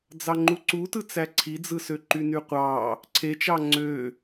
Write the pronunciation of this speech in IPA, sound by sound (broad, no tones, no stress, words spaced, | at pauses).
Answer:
d͡zɑŋ͡ǃuǀu tɯt͡sæǀʰid͡zɯ søǃynyqʷɑ | ǀʰet͡ʃɑ ŋ͡ǀø